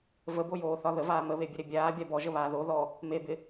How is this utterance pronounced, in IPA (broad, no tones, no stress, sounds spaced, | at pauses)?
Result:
v ə b o j oː θ ɒ ð ə v aː m ə β e bʲ ə ɾ e bʲ aː bʲ a b ɔ ʒ ə β aː ð o ð ɔ | m e b ɪ